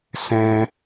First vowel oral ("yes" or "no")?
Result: no